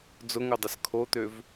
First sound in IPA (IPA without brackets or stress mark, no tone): d͡z